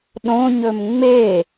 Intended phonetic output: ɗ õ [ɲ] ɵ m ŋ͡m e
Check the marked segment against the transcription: correct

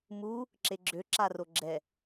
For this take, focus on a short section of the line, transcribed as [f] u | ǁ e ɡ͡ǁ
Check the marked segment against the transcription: incorrect: m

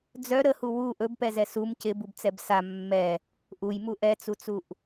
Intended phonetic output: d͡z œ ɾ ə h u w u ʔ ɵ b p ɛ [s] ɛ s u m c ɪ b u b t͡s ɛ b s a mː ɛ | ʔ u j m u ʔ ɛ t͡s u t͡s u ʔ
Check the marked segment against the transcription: incorrect: z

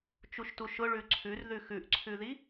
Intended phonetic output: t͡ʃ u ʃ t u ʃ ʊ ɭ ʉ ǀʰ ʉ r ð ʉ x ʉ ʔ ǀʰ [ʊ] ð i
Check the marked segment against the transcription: incorrect: ʉ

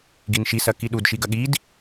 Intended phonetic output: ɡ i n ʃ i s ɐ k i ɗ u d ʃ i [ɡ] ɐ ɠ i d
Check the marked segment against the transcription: correct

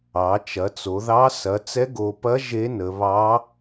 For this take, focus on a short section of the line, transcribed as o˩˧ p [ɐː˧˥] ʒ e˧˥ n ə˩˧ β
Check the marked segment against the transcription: incorrect: ɐ˧˥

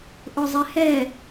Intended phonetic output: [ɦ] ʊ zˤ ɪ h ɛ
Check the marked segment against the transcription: incorrect: ʔ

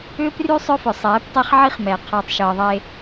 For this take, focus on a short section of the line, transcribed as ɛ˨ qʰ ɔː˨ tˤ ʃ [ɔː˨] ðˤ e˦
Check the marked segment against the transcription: incorrect: ɤː˨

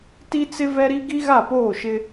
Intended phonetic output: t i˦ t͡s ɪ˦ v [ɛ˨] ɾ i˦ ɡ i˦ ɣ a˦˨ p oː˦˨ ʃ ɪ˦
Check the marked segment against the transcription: incorrect: ɛ˦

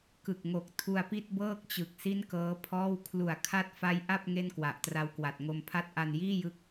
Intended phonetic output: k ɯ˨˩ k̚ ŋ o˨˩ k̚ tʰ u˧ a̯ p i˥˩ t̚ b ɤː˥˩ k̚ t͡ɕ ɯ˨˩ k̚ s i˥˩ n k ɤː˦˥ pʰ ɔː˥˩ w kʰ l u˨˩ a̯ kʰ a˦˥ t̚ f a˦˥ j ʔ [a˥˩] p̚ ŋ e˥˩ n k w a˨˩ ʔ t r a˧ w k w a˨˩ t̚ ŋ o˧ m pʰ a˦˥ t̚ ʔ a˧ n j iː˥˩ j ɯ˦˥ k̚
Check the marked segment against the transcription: correct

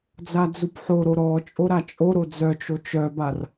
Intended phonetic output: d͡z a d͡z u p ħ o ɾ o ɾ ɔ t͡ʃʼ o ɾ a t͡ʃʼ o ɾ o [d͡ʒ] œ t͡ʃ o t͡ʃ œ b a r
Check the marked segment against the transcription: incorrect: d͡z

